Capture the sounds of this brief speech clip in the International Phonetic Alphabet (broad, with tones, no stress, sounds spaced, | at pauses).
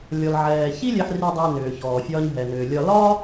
lʲ ɔ˩ l ʕ ɛː˩ ç i˥ lʲ ɛ˧ ħ r i˧ dˤ ʏː˧ n ʏː˩ ç ɔː˩ fʲ ɒː˧ ɲ ɦ ɛ˩ n ʏː˩ lʲ ɒ˧ l ɒ˥